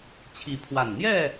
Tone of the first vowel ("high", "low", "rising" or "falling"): rising